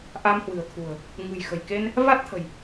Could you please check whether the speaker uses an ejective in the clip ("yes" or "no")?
no